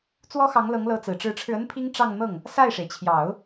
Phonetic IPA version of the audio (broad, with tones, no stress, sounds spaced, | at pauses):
t͡s w ɔ˥ x ɑ˧˥ ŋ l ɤ˧˥ ŋ l ɤ˧˥ t͡s ɹ̩˨˩ ʈ͡ʂ ɻ̩˧˥ ʈ͡ʂʰ ɻ̩˧ ə˥ n pʰ i˥ ŋ ʈ͡ʂ ɑ˥˧ ŋ n̪ ɤ˥˩ ŋ | s a˥˩ ɪ̯ ʂ e˩ ɪ̯ t͡ɕʰ j ɑ˨˩˦ ʊ̯